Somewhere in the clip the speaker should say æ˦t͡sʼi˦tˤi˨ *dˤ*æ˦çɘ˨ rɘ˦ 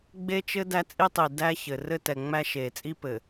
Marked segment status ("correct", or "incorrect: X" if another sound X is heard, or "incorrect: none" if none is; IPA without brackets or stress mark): incorrect: d